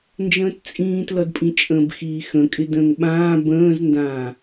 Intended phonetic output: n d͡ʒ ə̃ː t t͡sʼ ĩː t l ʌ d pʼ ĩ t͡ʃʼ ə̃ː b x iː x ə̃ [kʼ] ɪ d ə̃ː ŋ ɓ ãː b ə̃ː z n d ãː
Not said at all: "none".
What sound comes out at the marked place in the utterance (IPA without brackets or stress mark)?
kʼ